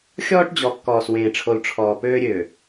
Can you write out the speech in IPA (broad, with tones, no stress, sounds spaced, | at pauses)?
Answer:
xʲ ɔː˦ ʈ d͡ʑ ɔ˨ kː ɔː˨ s w ẽː˨ ʈ͡ʂʰ o˨ l ʈ͡ʂʰ ɔː˨ p øː˦ ɾʲ øː˨